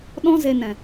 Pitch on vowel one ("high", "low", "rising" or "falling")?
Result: high